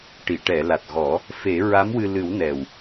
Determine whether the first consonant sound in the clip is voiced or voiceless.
voiceless